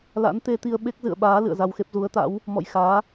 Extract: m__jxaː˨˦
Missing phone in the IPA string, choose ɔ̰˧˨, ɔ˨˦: ɔ̰˧˨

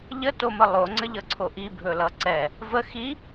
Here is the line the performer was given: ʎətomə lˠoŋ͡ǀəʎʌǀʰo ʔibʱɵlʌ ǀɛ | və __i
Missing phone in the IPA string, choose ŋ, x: x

